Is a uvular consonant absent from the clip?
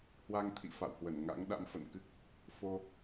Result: yes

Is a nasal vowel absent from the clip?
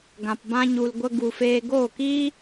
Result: no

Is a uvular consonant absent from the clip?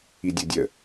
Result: yes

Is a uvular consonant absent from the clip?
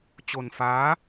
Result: yes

